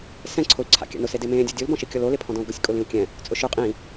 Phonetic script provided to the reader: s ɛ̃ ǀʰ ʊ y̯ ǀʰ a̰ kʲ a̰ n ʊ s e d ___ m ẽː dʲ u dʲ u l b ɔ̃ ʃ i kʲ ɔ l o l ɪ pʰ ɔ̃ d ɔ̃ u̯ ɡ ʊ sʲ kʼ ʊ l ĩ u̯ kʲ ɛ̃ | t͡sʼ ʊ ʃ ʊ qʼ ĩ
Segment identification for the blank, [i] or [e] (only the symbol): e